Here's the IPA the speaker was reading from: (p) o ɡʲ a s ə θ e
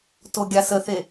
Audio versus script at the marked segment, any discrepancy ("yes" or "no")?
yes